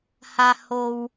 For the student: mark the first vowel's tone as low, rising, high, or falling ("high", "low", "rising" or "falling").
low